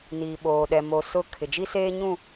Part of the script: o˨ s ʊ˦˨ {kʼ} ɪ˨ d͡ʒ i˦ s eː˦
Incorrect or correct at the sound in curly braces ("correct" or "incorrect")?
incorrect